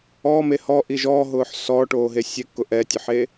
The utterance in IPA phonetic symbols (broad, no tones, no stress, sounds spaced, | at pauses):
ɔː m e h ɔ ʔ i ʒ ɔ ɦ ʊː ħ s ɔː ʈ oː ɦ e sʲ e kː ʊ ʔ ɛ tʲ ʊ ħ eː